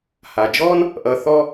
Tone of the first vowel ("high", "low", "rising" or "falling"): low